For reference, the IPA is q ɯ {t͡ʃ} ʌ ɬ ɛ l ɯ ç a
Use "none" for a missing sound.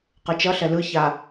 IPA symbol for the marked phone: t͡ʃ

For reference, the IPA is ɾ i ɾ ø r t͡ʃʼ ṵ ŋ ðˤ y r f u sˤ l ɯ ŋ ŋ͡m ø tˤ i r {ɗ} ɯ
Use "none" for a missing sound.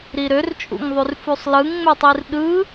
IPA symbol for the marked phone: ɗ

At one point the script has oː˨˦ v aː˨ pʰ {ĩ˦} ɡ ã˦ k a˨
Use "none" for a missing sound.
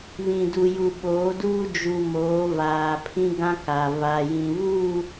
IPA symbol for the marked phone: ĩ˦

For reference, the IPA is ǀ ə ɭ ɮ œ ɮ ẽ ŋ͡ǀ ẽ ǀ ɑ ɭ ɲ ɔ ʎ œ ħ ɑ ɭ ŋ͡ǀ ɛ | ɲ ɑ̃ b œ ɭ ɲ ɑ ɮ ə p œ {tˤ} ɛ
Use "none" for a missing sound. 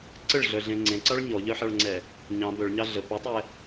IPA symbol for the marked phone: tˤ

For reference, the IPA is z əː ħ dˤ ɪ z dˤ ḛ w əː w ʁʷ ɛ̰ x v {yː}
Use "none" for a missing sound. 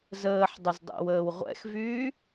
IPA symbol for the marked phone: yː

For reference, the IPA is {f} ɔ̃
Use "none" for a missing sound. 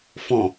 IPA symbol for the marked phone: f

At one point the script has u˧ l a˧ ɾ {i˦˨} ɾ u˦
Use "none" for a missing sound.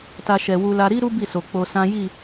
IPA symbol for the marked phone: i˦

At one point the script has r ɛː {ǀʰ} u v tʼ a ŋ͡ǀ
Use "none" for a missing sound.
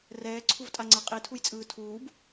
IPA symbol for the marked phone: ǀʰ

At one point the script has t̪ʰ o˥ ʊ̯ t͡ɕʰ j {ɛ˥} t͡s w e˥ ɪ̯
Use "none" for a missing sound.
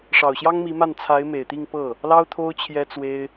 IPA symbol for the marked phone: ɛ˥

